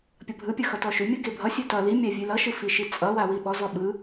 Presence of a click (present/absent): absent